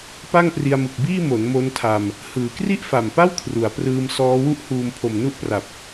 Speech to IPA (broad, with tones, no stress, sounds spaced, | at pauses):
p a˥˩ ŋ p r i˧ a̯ m ɯ˨˩ k̚ b iː˥˩ m o˩˦ n m o˦˥ n tʰ a˧ m | h ɯː˩˦ k r i˥˩ ʔ f a˨˩ m p a˥˩ w kʰ r u˩˦ a̯ p r ɯː˧ m s ɔː˦˥ w u˥˩ ʔ h uː˧ m pʰ o˨˩ m n u˥˩ ʔ p r a˨˩ p̚